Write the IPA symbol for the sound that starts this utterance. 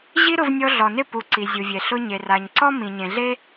ʑ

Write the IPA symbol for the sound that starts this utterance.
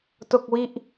t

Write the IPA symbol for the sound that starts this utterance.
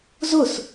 z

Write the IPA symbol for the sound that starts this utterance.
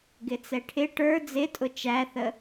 ɡ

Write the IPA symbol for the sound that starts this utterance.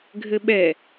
ɡʱ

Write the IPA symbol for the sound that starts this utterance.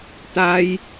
t̪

